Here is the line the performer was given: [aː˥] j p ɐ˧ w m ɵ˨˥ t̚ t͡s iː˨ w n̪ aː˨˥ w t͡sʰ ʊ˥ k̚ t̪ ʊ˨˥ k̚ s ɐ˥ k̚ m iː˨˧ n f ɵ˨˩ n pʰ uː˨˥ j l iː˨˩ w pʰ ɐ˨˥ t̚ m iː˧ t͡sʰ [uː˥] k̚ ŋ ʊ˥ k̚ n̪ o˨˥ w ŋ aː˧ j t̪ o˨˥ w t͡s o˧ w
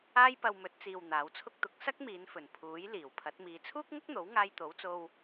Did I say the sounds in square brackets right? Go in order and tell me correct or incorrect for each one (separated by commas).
correct, correct